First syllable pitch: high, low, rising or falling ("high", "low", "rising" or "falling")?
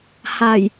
low